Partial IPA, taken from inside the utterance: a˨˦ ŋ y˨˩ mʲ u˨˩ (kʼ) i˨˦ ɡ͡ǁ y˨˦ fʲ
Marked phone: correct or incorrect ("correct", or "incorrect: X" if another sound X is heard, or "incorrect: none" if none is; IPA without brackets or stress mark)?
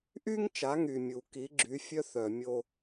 incorrect: k